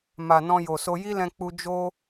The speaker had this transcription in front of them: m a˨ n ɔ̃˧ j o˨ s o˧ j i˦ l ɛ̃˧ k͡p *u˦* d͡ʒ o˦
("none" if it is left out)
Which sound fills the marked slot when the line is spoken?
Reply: u˧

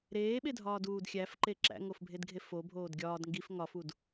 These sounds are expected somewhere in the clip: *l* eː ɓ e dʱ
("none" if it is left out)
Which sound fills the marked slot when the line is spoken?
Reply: ɾ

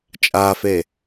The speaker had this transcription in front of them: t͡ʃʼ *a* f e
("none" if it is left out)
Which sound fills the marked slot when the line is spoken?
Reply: a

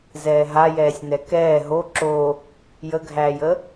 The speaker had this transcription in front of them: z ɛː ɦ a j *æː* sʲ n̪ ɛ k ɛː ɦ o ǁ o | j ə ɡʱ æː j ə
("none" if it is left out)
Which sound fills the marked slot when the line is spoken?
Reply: ɛː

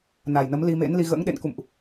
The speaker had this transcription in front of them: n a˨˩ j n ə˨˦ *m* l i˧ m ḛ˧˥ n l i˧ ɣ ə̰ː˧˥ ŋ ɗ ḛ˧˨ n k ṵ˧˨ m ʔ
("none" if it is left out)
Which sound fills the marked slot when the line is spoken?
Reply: m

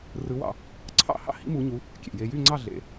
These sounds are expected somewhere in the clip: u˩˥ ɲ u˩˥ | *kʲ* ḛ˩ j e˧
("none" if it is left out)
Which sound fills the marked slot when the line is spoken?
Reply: kʲ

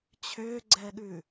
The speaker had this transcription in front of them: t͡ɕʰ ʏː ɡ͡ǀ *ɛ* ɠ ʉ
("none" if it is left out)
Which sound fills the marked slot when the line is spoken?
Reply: ɛ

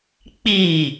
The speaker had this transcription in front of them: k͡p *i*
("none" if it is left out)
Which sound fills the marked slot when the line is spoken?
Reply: i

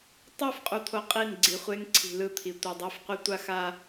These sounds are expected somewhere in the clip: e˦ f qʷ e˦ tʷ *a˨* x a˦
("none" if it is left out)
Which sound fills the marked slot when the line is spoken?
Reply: a˦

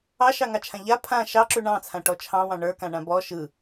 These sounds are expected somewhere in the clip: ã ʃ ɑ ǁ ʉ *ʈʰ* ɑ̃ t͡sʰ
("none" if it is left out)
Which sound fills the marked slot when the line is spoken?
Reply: ɳ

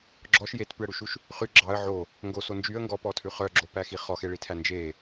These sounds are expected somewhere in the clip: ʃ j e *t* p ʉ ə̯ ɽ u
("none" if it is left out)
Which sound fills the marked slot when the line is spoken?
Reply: t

